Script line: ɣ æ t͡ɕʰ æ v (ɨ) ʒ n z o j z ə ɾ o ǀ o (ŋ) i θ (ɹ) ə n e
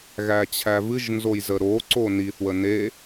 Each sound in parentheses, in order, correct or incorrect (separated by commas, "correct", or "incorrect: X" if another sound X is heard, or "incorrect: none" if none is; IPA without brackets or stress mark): correct, incorrect: n, incorrect: w